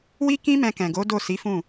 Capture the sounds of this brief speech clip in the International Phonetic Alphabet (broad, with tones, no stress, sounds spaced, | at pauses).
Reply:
w i˦ k ĩ˦ m ɛ̃˧ k ɛ̃˨ ɡ o˨˦ d o˦˨ s i˨˦ f ũ˦˨